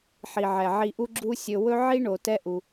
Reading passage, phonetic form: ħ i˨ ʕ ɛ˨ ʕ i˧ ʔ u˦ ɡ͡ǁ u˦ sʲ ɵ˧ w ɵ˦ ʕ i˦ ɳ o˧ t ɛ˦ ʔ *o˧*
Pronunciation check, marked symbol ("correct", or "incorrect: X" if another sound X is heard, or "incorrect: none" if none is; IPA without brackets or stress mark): incorrect: u˧